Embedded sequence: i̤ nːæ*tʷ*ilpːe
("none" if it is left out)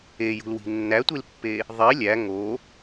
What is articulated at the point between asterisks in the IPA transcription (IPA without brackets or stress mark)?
tʷ